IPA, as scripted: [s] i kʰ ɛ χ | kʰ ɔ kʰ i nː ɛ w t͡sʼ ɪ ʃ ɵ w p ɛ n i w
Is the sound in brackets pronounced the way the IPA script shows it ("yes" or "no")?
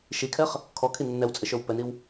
no